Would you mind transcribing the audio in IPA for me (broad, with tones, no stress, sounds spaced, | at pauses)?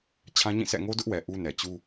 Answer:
t͡ɕʰ ã˦ ɲ ĩ˦˨ s ɛ̰˦˨ ŋ o˦ d ʊ˦ ʔ w ɛ˨ ʔ u˦ n ɛ˨ t͡ɕ u˦